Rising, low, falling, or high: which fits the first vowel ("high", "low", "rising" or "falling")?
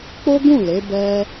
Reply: high